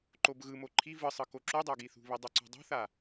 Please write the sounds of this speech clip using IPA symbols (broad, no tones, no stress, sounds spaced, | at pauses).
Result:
ǃ o b ɣ ɯ m o ǃʰ i v ɯ sˤ ɯ k o ǁ u dˤ a ɡ i θ ṳ β i dˤ u ǀ ṳ dˤ o̤ θ a